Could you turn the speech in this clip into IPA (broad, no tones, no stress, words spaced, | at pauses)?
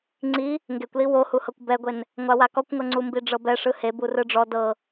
ŋ͡ǀi | ŋɡekʷli wohuhɤkʷ bɛɡʷen | ŋʷawakɔkʷŋɤ ŋ͡ǀumbiɖ͡ʐɤbɛ ʂɯheb urɯɖ͡ʐɔ dɤ